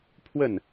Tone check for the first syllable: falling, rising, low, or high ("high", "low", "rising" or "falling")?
falling